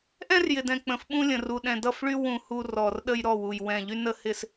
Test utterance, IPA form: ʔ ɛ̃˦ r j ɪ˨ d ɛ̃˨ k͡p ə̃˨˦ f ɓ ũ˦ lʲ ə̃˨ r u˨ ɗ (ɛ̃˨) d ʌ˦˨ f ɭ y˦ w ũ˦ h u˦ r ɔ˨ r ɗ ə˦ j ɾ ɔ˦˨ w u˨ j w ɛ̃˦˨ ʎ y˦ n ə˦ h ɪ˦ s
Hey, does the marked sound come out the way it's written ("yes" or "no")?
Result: yes